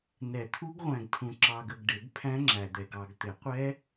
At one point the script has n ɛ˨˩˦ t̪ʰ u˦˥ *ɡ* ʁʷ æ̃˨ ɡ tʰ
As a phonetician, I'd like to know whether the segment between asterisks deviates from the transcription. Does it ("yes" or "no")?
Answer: no